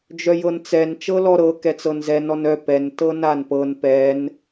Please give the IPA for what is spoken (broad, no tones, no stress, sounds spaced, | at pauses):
d͡ʒ œ j ɤ n t͡s ɛ n t͡ʃ ɤ l ɔ ɾ ɤ k ɛ t͡s ɤ n z ɛ n ɔ n œ p ɛ n t ɤ n a n p ɤ n p ɛ n